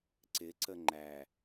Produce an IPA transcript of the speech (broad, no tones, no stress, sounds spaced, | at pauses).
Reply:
ǀ ɪ ǀ ə ŋ͡ǃ æ